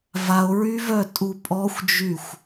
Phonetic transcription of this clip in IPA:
vao̯ɹyvœtʼu pʼɔxʷd͡ʒyxʷ

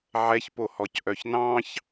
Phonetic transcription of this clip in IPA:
ʕɛçpohɔc ʔœçnɑ̃ç

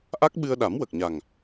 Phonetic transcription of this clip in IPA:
ʔa˦˥k̚ ɓɨ˧ə̯ɗa˨˩˦mwə˨˩k̚ɲa˨˩ŋ

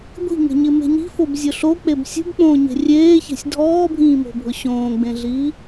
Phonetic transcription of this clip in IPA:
ɡʷi̤ŋe̤ɲɪme̤ ɲi̤fobzʲʊ ɬok͡peb sʲṳbk͡põːɲe̤ rʲeːçe̤sʲ dʱɔːbʱĩːmo̤bʱʊ ɕõːɡ͡bẽɮiː

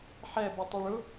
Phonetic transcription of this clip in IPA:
ħɛ bʊtˤoɭʊ

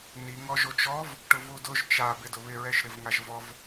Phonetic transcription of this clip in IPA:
ni ŋɔʒot͡ʃɔv | ʈʊvudʊʒ t͡ʃa bɪdʊβɪ ɹɛʃɾɪvŋaʒvɔv

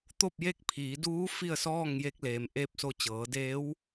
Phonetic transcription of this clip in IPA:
t̪o˥˨p̚je˥˨k̚pʰiː˩˧ duː˧˥ fi˥˨ə̯sɔː˥˨ŋje˧k̚leː˩m ʔe˥˨p̚ so˧t͡ɕɤː˩˧deː˧˥w

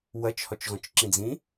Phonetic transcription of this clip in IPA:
wɐt͡ʃhɔt͡ʃɣɔ̃t͡ʃ ǁĩd͡zĩ

